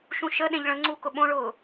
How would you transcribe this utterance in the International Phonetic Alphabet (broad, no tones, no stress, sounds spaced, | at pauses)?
ʃ ũ ʃ ə ɗ ẽ ʎ ɭ ə̃ ŋ͡ǀ u k ʊ ɓ õ ɭ ʊː